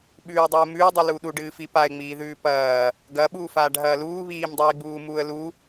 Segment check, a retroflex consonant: present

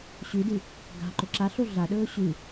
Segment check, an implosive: present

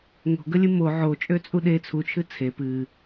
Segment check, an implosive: present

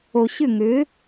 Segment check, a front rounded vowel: present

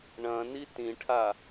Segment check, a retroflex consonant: present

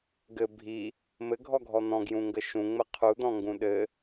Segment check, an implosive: present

